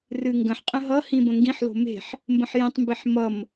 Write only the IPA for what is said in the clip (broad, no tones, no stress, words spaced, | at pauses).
rɨŋɡə̃ħqʼə̃ ɦʌhĩ bə̃ŋɡĩħlo̤ me̤ħ | mbə̃ħjĩtˤmbeħ mʌm